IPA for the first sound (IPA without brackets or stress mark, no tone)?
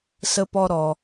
s